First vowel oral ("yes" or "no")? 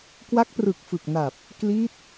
yes